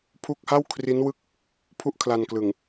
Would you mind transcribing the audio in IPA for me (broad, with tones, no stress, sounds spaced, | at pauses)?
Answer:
pʰ u˦˥ k̚ h a˥˩ w kʰ r i˦˥ n w ɯ˥˩ k̚ | pʰ u˥˩ ʔ kʰ l a˧ n k l ɯ˨˩ ŋ